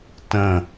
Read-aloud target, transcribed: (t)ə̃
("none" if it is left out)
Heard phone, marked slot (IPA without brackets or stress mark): t